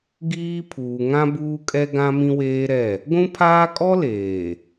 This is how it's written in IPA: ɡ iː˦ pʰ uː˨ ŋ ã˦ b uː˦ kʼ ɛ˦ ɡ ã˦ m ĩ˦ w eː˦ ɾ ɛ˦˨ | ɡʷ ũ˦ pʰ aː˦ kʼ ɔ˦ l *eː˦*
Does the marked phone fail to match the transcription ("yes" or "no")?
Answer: yes